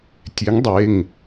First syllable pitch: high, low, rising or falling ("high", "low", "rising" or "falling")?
rising